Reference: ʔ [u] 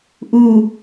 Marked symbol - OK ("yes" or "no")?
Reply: yes